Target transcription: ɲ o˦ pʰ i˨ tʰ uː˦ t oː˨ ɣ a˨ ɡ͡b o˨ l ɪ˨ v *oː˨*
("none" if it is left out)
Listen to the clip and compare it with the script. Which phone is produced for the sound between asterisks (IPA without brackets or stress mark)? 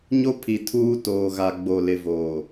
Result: oː˨